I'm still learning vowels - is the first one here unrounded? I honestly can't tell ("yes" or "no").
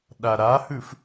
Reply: yes